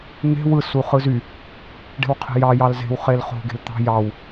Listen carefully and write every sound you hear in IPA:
n̪ e̤ w ɯ s u χ ɯ z y | ɖ e̤ w qʰ e̤ j ɑ j ɑ l z e̤ w χ e l χ o̤ ɡ e̤ l t̪ ɑ̤ j ɑ w

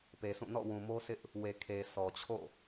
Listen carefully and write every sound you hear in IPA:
p e˨ sʰ ũ˦˨ n ɔ̰˦˨ w ũ˨ m o˦ s ɪ˦ ʔ | w e˨ kʰ e˨ s ɔ˨ t͡ɕʰ o̰˦˨

